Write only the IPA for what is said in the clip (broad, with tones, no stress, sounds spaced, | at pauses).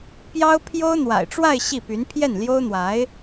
p j ɑ˥ ʊ̯ pʰ j o˥ ʊ̯ n̪ w a̰˨˩ ɪ̯ ʈ͡ʂ w a˥˧ ɪ̯ ɕ i˥˩ p y˧˥ n pʰ j ɛ˥˩ n l j o˥ ʊ̯ n̪ w a˧˥ ɪ̯